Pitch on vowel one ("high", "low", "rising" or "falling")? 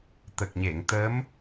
low